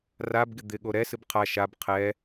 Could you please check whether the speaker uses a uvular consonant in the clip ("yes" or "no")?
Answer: yes